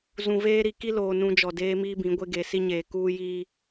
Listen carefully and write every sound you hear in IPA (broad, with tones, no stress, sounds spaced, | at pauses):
z ũ˨ v eː˦ ɾ i˨ k i˦ l oː˨ n ũ˦ d͡ʒ ɔ˨ d eː˦ m iː˦ b ĩ˨˦ ɡʷ e˦ ɡ e˨ s i˦ ɲ eː˨ k uː˦ j iː˦